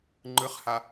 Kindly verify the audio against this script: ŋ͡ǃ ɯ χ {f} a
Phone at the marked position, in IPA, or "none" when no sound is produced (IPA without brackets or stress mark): h